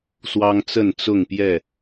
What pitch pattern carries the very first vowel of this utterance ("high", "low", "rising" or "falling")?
high